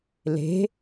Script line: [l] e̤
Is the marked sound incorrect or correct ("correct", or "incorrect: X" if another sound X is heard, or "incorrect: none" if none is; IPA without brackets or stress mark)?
correct